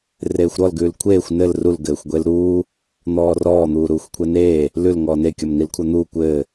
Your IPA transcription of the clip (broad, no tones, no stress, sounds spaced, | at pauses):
r eː xʷ ɾ ɔ l ɡ ʉː l kʷʰ eː xʷ n ɘ l r u l ɡ ɘː xʷ ɡʷ e l ɾ uː | n̪ ɔː r ɔː n̪ uː ɾ uː xʷ kʷʰ ɛ n eː | l ʉ l ŋ ɔː n e kʲ ɔ m n i l kʷʰ a n̪ uː kʷ ɘː